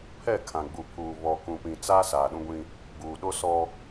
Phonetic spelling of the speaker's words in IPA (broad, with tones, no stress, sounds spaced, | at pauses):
pʰ ɛ˦˨ kʰ ã˨ ɡ͡b u˨ pʰ uː˨ β ɔ˨ k ũ˨ p ĩ˨ t͡s a˦ s aː˨ ɗ ũ˦ ɡʷ ĩ˦ | ɡ͡b uː˨ ɗ o˦ s ɔ˦